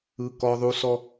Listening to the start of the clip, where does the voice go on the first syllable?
high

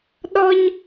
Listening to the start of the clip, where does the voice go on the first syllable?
high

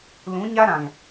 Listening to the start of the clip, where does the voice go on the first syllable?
rising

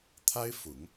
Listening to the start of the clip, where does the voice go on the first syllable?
high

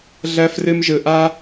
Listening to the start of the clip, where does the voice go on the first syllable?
high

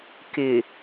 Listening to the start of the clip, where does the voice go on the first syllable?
low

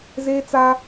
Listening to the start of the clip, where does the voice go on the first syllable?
high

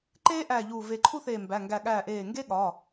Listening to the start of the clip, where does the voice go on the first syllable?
high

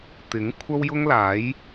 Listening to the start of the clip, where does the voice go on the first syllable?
rising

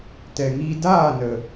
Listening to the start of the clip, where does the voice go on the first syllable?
low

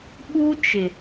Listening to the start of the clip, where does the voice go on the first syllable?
high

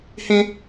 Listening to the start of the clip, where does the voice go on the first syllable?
high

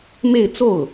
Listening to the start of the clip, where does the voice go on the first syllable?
falling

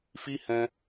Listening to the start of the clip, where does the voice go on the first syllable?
high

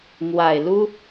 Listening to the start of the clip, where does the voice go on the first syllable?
low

